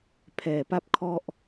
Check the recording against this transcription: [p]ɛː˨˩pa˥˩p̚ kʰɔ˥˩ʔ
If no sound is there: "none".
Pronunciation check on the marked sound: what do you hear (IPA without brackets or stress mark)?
pʰ